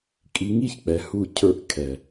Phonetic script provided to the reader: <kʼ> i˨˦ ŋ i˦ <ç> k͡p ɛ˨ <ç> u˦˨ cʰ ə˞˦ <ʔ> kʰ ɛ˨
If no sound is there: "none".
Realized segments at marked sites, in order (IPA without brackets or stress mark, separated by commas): kʼ, ç, h, ʔ